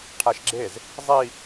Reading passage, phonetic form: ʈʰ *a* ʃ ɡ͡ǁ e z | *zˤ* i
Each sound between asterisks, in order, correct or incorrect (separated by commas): correct, correct